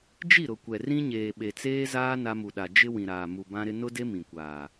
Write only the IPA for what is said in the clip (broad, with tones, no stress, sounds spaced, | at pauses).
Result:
d͡ʒ i˦˨ ɾ ʊ˨ kʷ ɛ˨ r ĩ˦ ɲ eː˨ ɓ e˨ t͡s eː˦ z aː˦ n a˦ m u˨ ɗ a˨ d͡ʒ ɪ˦ w ĩ˨ ɾ aː˨ m u˨ b ã˦ ɾ ɪ˦ n ʊ˦ d e˦ m ĩ˨ kʷ aː˨